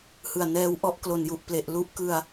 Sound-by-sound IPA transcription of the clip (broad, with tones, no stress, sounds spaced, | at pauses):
h ɯ˨˩ a̯ n ɛː˦˥ w ʔ ɔ˦˥ ʔ k l o˨˩ n j u˨˩ ʔ p l e˨˩ ʔ l u˥˩ ʔ k ɯ˧ a̯